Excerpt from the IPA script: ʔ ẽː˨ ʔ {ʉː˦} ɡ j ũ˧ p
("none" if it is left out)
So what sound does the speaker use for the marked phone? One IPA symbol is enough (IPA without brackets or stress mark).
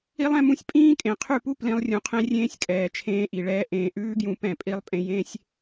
ʉː˦